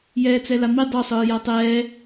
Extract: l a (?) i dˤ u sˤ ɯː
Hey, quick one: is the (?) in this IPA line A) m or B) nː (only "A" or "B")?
A